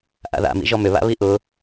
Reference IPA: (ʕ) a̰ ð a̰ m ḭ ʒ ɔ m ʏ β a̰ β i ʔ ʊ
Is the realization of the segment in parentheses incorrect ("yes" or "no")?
yes